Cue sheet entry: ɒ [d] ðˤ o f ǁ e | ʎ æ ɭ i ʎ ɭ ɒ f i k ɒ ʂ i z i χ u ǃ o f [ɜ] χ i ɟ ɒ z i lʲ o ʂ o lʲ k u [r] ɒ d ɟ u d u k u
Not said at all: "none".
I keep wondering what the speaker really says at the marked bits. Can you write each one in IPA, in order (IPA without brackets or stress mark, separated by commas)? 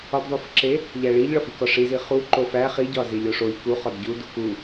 d, æ, χ